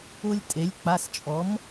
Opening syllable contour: high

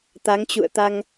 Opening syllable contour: rising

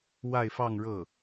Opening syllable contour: falling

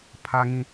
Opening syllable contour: high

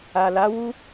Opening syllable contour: low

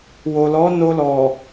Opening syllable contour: low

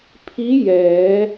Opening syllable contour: rising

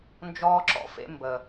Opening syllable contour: high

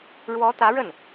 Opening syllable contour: rising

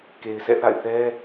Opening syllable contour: low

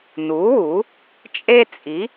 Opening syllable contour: rising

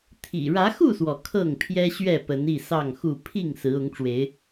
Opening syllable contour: low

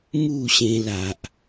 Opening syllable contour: falling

